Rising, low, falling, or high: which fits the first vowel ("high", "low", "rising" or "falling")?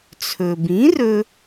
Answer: low